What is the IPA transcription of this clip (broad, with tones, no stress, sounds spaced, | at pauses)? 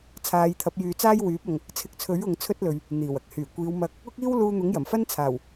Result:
t͡sʰ aː˨˧ j t̪ʰ ɐ˨˥ p̚ j yː˨ t͡s aː˥ j w yː˨˥ p̚ ɐ˨ ŋ | t͡sʰ ɪ˨˥ k̚ t͡sʰ ɵ˨˥ ɥ ʊ˨˧ ŋ t͡sʰ ɵ˥ t̚ l ɵ˨ ɥ | n̪ iː˨˩ w ɐ˨˥ k̚ h yː˨˩ kʷ iː˨˧ w m ɐ˧ k̚ | ʊ˥ k̚ iː˥ w l uː˧ n̪ ʊ˨˥ ŋ j ɐ˨˩ m f ɐ˥ n t͡sʰ aː˨˩ w